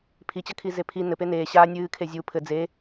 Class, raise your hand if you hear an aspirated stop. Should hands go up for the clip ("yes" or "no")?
yes